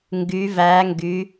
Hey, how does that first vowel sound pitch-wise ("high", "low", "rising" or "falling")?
rising